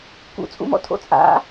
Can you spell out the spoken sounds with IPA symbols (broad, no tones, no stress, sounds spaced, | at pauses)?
k ṵ t͡sʼ ṵ m ɔ̰ tʰ o̰ t͡sʼ a̰